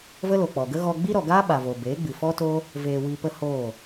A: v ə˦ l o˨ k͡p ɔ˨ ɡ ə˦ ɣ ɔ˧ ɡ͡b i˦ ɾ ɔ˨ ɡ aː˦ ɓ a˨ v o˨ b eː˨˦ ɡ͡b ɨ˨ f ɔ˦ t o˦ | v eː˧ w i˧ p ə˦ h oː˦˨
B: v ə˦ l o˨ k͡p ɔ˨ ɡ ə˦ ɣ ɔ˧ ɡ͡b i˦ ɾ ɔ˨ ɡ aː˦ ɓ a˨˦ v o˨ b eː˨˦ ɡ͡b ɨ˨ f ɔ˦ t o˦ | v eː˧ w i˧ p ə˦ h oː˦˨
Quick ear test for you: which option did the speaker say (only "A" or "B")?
A